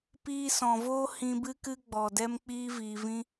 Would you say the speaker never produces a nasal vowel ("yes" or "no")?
no